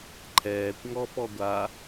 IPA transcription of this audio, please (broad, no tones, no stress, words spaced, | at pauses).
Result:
ǃʰɛːkʷŋɔ pɔɡʷa